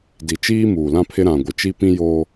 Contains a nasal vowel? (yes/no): yes